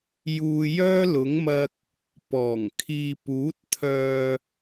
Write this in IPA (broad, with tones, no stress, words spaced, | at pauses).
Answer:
juː˧ jœː˥lʊ˨˥ŋmɐ˧k̚ | pɔː˨˩ŋ kʰiː˨puː˨˥t̚t̪ʰœː˨